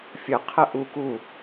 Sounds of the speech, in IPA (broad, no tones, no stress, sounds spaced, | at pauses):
fʲ ə qʰ ə ʔ u k u